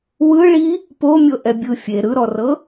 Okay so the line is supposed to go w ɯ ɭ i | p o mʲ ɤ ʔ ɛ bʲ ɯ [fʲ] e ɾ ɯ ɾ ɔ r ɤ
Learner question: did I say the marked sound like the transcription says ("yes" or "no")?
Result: yes